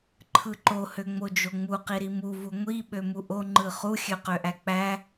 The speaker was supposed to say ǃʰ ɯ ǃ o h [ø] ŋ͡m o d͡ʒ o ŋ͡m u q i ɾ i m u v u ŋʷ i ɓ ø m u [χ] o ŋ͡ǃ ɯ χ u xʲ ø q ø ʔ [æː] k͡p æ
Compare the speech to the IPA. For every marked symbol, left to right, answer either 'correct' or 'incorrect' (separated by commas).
correct, incorrect, incorrect